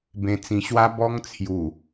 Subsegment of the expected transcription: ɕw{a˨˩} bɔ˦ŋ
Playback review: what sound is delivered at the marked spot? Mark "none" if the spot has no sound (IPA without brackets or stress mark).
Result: a˦